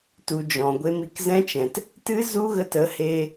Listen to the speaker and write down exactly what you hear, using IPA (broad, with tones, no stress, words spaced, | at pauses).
tu˨d͡ʒɔ̃˨ɡʷe˧m i˨kzɛ̃˦t͡ʃɛ̃˨t | tɨ˦zu˦ɣə˧t ə˨˦he˧